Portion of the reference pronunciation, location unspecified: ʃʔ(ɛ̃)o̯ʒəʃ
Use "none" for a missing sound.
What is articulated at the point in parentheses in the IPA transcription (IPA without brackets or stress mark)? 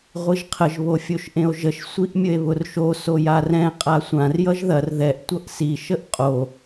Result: ẽ